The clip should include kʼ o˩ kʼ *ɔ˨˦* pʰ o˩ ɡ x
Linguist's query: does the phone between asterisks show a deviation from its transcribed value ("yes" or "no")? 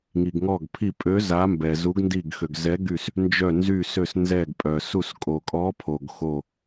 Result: no